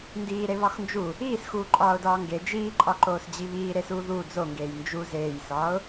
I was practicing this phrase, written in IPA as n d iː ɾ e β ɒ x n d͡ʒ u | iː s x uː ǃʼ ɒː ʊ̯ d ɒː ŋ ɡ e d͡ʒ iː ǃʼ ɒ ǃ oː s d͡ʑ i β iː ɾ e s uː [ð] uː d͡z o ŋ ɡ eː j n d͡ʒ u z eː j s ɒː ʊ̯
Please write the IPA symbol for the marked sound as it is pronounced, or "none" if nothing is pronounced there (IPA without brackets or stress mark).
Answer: ð